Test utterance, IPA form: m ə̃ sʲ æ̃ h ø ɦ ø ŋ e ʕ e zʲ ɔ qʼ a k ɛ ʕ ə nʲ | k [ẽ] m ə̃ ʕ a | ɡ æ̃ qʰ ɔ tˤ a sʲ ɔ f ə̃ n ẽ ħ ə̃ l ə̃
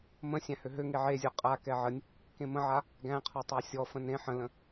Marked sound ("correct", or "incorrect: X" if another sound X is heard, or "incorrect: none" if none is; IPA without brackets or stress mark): correct